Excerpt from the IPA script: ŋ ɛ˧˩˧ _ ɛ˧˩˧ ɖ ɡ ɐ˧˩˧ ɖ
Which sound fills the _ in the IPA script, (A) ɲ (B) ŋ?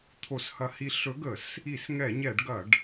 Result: A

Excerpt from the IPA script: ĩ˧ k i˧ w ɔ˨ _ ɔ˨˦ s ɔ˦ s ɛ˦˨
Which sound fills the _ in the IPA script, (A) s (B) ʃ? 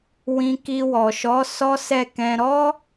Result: B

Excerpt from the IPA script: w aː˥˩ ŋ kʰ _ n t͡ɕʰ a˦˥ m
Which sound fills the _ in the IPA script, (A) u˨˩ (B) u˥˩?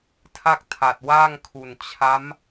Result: A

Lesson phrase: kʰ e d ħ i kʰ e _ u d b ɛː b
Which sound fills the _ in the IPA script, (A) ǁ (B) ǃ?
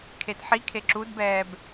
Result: A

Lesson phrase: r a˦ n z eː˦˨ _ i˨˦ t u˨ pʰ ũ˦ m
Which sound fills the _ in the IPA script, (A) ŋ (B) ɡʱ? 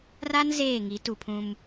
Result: A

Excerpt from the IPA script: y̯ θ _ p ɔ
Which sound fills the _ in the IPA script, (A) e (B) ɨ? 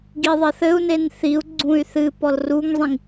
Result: B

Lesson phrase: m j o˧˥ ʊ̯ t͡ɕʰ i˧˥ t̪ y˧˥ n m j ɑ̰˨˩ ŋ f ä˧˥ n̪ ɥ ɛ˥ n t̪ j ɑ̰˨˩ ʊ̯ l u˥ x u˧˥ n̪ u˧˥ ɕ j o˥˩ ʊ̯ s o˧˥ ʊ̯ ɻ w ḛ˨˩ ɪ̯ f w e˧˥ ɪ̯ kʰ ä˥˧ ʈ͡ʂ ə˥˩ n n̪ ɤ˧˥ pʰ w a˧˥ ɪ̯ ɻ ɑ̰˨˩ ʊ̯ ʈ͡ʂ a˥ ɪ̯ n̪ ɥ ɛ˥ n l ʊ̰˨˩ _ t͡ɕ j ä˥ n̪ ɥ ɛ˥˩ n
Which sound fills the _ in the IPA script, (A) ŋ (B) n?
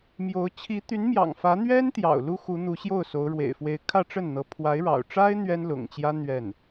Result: A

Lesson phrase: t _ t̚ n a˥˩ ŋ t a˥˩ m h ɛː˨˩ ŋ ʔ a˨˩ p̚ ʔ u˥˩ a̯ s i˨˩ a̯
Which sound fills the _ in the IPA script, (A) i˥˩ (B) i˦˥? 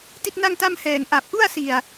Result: A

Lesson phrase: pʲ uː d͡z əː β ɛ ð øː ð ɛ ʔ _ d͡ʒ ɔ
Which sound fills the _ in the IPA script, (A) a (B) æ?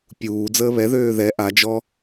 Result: A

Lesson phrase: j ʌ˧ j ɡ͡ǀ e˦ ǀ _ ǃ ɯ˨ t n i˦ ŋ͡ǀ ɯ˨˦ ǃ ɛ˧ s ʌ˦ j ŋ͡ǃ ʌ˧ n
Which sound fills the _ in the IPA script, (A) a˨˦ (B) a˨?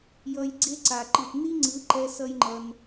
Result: B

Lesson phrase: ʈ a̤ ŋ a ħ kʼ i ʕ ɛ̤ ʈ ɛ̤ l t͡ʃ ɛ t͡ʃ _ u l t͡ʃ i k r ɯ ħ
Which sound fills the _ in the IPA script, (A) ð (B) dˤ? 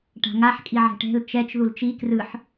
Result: A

